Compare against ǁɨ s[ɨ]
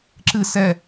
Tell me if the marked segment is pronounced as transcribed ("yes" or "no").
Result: no